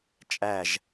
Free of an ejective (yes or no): no